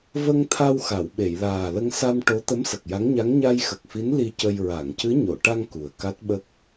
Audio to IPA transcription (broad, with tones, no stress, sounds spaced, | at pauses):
v ə˧ ŋ t̪ʰ a˧ w x a˨˩˨ w ɓ e˨˩˨ j l aː˨˩ l ə˧ ŋ s a˧ m ʈ o˧˥ t̪ ə˧˥ m s ə˨˩ k̚ j a˧˥ ŋ ɲ a˧˥ ŋ ɲ a˧ j x ə˨˩ k̚ f i˧˥ n l i˧ c ə˧ j ɹ a˨˩˨ ŋ c ɨ˧˥ ɲ o˨˩˨ ʈ a˧ ŋ k u˨˩ ə̯ k a˦˥ t̚ ɓ ə˦˥ k̚